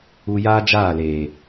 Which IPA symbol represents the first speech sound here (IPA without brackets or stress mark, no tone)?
u